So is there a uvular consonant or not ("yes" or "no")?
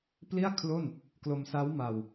no